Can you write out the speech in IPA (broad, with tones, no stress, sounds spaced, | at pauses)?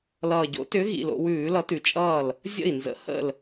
l ʌː˨˩ ɟ o̰˨˥ t ʏ˨˥ ɣ ḭ˨˩ l o̰˧ w ʉː˧˩˧ l ʌ˨˥ t ʉ˨˩ t͡ʃʼ ʌː˥˩ l | zʲ ə̰˥˩ i̯ n z ə̰˨˥ h ə̰˥˩ l